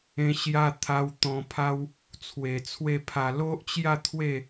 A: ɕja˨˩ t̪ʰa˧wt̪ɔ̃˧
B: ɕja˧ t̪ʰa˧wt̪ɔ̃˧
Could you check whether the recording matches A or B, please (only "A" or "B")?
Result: B